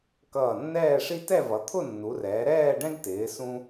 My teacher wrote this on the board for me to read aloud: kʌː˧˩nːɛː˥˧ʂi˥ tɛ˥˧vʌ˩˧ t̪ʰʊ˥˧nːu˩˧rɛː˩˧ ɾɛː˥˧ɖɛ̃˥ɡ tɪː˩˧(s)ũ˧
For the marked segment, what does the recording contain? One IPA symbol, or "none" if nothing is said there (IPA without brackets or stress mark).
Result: s